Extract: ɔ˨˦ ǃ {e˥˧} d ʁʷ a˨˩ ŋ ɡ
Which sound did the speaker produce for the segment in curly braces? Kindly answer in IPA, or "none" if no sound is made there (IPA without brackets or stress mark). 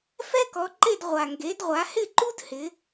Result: e˥˧